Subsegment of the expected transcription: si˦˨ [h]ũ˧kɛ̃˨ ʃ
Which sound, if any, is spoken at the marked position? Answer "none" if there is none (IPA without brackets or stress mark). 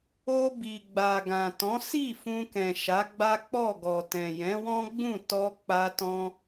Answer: f